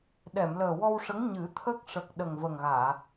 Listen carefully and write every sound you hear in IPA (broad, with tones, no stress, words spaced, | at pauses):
ɗɛ˨˩˨mləː˨˩wɔ˧wʂə˧˥ŋ ɲɨ˨˩˦t̪ʰə˦˥k̚ ʂə˨˩k̚ ɗə˨˩ŋvə˨˩ŋɣaː˨˩˨